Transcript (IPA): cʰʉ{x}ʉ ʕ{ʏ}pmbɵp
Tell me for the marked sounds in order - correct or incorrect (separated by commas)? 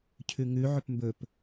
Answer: incorrect, correct